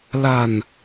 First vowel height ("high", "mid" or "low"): low